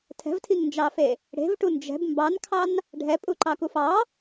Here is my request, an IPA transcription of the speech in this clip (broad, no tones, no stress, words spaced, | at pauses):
tʰɛ̤vtʰiŋnd͡ʒɑfe | ɽe̤vʈu nd͡ʒɛ̤b mbɑnkʰɑn | ɖʱɛpʼuǃɑkuf ɑ